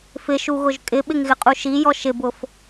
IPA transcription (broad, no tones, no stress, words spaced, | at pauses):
fɪʃuɣʊʒ kʼɪɓɪŋɣɪqʼu ʃijɔ ʃɪbʊf